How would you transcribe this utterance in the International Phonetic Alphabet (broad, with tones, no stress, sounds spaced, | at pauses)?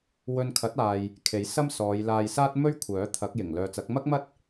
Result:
w ɵ˧ n kʰ ɐ˨˥ t̚ aː˨ j | kʰ e˨˥ j s ɐ˥ m s ɔː˨˧ j l aː˧ j s aː˥ t̚ m ɵ˥ ɥ kʷʰ œː˨˥ t̪ʰ ɐ˨˥ k̚ j ɪ˨˩ ŋ l œː˨ t͡s ɐ˨˥ k̚ m ɐ˥ k̚ m ɐ˥ t̚